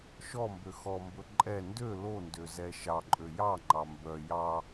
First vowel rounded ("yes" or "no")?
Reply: yes